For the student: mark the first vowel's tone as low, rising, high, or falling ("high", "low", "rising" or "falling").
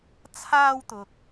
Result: high